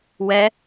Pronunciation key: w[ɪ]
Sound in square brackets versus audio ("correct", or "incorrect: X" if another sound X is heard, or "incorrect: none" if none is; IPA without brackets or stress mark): incorrect: ɛ